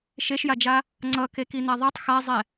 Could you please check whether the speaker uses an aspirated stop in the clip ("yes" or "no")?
no